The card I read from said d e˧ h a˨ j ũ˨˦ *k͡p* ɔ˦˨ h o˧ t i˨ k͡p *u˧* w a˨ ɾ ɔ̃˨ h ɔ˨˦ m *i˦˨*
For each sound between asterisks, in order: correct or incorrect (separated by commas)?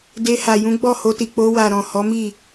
incorrect, incorrect, correct